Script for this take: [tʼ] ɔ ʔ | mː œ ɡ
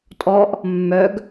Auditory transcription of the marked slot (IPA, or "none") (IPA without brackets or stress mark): tʼ